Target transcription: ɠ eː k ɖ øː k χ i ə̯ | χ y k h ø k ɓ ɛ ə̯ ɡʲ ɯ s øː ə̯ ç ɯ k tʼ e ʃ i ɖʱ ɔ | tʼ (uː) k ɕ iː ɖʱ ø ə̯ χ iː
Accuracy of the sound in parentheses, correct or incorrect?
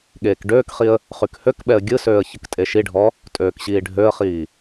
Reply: incorrect: øː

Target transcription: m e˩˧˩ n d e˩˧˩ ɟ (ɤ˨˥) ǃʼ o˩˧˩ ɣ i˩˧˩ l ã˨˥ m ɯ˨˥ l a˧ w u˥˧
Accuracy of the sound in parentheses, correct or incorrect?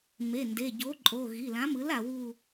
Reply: incorrect: o˨˥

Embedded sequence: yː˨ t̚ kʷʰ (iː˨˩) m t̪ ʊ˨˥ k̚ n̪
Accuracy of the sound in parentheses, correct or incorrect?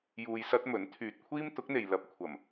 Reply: incorrect: iː˥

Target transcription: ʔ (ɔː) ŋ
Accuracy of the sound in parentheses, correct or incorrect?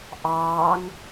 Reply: incorrect: ɑː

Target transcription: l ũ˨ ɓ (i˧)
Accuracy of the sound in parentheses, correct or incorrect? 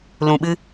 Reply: incorrect: ɨ˧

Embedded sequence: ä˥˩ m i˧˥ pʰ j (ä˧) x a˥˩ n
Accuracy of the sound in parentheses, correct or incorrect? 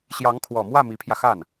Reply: correct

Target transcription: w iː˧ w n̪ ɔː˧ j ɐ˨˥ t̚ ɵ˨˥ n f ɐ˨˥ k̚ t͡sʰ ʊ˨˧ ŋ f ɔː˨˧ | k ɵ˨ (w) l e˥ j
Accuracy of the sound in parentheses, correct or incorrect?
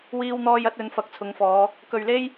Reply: incorrect: ɥ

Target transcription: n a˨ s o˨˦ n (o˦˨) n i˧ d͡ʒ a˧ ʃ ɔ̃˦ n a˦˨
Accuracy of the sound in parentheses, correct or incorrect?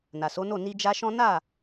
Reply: correct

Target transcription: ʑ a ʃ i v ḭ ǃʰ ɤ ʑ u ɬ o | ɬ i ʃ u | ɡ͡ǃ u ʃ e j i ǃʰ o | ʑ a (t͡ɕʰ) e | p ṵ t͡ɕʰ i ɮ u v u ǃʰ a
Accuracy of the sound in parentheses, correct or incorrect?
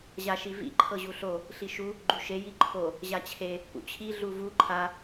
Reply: correct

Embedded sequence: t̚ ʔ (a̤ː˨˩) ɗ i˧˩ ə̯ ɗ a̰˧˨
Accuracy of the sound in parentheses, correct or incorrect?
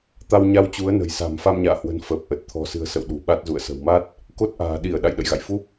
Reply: correct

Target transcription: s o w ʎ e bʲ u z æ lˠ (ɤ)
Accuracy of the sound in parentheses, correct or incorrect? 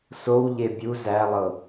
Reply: correct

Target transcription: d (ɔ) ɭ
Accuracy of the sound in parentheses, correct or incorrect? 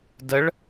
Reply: incorrect: ə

